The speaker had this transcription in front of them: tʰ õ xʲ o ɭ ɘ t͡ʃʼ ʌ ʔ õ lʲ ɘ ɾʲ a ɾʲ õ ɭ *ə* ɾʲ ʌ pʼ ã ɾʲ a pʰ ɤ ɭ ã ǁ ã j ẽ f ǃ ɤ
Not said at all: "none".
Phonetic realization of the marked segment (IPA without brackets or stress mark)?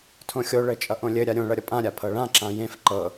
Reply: ʌ